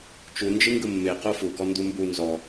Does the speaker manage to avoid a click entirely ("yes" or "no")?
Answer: yes